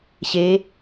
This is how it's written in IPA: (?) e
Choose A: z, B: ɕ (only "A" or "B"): B